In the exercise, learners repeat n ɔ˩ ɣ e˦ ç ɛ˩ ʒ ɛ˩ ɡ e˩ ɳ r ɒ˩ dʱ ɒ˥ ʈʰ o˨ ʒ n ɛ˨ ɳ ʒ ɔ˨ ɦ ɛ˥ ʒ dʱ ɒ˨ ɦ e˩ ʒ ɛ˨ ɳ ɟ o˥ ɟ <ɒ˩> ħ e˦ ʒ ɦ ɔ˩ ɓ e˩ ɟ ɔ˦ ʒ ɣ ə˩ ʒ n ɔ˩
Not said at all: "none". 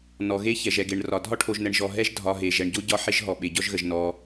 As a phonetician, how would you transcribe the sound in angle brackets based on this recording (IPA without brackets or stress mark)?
ɒ˦